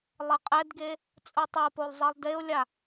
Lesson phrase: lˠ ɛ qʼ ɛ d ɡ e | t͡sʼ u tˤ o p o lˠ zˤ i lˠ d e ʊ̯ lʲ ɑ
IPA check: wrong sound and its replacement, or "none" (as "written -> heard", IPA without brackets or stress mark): ɑ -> a